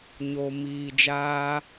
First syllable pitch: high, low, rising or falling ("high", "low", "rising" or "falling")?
low